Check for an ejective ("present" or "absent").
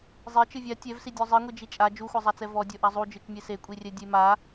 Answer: present